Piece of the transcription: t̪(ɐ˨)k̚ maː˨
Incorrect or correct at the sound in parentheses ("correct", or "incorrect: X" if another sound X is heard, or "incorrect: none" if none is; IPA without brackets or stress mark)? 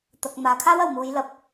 correct